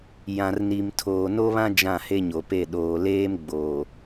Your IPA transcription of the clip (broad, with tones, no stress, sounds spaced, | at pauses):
j ã˨ r n i˨ m tʰ oː˨ n o˦ β ã˦ d͡ʒ ã˦˨ h e˦ ɲ o˨ p e˦˨ ɗ oː˨ l eː˦ m ɡ͡b oː˨